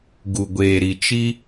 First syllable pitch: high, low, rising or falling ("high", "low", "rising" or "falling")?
low